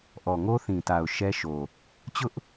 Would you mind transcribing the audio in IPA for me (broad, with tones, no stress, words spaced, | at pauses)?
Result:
ʔɔ˨ŋo˦θĩ˨ta˨ʊ̯ ʃɛ˦ʃo˨ | t͡ɕʊ˦ʔ